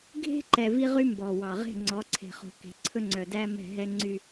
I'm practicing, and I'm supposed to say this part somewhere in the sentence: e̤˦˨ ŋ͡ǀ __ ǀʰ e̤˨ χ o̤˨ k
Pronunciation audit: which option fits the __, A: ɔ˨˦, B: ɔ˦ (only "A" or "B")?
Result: A